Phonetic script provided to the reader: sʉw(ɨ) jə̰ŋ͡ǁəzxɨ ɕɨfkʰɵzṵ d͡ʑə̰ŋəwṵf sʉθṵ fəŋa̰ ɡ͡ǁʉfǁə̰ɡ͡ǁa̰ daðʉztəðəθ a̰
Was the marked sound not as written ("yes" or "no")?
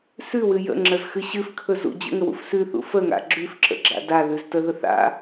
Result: no